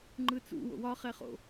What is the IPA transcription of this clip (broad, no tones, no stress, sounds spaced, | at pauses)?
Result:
ŋ͡ǃ ɯ t͡s ṵ w o̰ w ɒ χ ɛ χ o̰